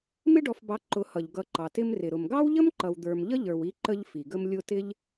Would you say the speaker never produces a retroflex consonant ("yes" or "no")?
no